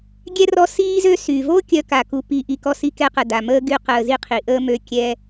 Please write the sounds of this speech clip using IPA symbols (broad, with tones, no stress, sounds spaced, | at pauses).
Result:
ɡʲ ɛ˥ r ɔ˦ s iː˥ z ø˥ s y˩ v o˥ kʲ œ˦ k a˩ k u˨ p i˨ ʔ i˨ k ɔ˥ s i˦ k ɛ˥ q ə˩ d a˩ m əː˥ ɡ y˦ q əː˨ z i˦ qʰ i˩ ʔ əː˥ m ø˦ kʲ ɛ˥